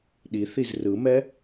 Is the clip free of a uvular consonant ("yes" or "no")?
yes